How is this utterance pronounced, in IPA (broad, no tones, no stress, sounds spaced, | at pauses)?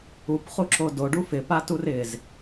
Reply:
u p χ u ǁ o d o ɖ u f ɪ p a t u r ɪ z